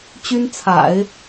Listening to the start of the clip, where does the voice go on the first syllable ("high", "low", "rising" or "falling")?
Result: high